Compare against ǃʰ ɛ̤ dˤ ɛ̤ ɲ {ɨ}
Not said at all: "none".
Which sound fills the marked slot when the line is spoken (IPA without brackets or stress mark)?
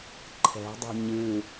ɨ